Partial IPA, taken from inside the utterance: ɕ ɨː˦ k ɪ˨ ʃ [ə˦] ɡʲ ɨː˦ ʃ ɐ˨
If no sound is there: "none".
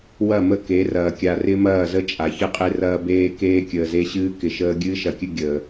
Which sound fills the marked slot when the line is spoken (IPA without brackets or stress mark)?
əː˦